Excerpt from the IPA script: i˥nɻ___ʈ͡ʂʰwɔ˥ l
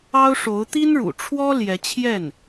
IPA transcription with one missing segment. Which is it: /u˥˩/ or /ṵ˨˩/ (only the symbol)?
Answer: ṵ˨˩